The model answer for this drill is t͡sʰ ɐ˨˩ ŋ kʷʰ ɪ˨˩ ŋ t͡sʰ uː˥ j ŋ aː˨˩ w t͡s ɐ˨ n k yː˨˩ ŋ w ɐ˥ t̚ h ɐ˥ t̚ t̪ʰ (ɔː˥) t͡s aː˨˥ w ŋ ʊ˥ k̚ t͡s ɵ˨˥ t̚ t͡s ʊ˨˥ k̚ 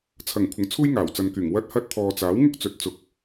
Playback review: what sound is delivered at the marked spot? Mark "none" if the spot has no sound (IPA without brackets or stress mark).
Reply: ɔː˨